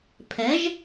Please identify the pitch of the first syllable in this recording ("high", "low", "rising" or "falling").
rising